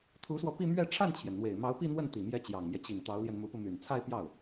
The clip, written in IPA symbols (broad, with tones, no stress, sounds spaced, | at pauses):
t̪ʰ u˧˥ s w ɔ˧ p i˥˧ m ɥ ɛ˥˧ ʈ͡ʂʰ a˥˩ n t͡ɕʰ j ɛ˩ n n̪ w e˨˩ ɪ̯ m ɑ˧˥ ʊ̯ p i˥˧ n̪ w ə˥˩ n t̪ i˨˩ m j ɛ˧˥ t͡ɕ j ɑ˨˩ ŋ m j ɛ˦ t͡ɕ i˨˩ ŋ t̪ ɑ˧˥ ʊ̯ l j ɛ˧ n m u˧˥ p u˧ m y˨˩ n t͡sʰ a˥˧ ɪ̯ p j ɑ˥˩ ʊ̯